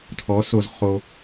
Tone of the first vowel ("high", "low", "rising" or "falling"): rising